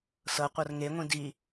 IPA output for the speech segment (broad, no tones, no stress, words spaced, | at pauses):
sɤqʷɤr ŋeŋʷĩ di